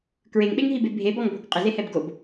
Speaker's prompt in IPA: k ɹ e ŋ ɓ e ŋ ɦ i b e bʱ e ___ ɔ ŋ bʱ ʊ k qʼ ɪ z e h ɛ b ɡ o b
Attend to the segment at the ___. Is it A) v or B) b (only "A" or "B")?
B